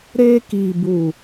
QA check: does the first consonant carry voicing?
yes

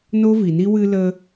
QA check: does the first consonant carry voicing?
yes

